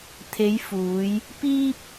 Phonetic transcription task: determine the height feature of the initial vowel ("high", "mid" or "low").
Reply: mid